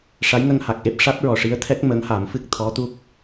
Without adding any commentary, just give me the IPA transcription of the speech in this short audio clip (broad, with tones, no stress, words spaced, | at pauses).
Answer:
ʂa˧˥jŋə˧ŋha˨˩k̚ʔe˦˥p̚ ʂa˦˥t̚ɹɔ˨˩ʂi˧˥ə̯t̪ʰɛ˦˥k̚ mə˧˥ŋha˨˩˦mfɨ˦˥k̚ t̪ʰɔ˧˥t̪u˦˥k̚